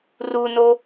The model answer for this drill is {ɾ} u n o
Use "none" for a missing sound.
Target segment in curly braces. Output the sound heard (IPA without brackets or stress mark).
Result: r